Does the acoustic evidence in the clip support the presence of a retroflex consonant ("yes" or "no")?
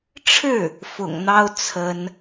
yes